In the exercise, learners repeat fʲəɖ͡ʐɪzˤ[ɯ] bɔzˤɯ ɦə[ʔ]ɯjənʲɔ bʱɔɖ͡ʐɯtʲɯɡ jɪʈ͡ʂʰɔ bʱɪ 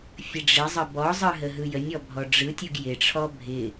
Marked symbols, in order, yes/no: no, no

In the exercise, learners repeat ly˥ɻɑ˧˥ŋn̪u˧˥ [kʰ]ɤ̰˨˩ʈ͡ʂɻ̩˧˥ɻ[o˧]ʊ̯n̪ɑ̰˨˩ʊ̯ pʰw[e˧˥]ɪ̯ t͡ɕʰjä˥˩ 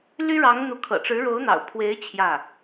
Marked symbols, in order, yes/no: yes, no, yes

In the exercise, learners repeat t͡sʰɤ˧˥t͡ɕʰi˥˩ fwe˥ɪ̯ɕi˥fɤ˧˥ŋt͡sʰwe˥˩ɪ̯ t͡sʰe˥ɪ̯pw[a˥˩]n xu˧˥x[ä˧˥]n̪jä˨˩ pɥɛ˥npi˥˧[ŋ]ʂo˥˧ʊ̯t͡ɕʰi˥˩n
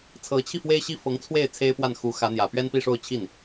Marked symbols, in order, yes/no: yes, yes, no

